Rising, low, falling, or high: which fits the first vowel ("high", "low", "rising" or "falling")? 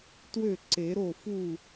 falling